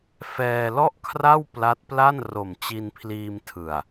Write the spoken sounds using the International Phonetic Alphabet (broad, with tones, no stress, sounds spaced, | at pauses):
f ɛː˧ l ɔ˥˩ ʔ kʰ r a˥˩ w p l a˦˥ t̚ p l a˥˩ n r o˨˩ m t͡ɕ i˧ n pʰ l iː˧ m tʰ ɯ˨˩ a̯